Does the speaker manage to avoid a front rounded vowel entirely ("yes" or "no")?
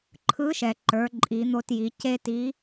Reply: yes